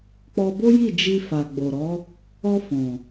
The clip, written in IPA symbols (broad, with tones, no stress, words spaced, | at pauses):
k͡pɔ˧bo˦ji˦˨ d͡ʒi˧fa˨ ɡ͡bo˨ɾɔ˨˦ | ɔ˧ fɔ̃˨